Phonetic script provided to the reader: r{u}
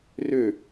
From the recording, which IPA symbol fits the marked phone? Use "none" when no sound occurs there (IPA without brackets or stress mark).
ø